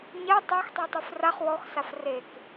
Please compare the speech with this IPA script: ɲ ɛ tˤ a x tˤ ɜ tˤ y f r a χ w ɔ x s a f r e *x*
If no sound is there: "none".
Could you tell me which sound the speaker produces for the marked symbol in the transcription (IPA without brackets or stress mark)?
k